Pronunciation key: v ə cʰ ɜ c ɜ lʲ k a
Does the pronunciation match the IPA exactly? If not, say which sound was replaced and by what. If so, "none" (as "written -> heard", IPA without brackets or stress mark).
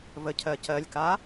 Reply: none